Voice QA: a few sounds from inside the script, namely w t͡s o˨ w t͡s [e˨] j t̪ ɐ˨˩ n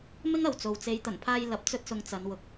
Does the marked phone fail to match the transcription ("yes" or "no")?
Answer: yes